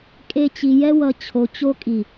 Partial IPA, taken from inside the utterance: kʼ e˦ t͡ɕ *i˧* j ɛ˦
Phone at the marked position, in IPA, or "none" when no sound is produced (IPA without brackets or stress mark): i˧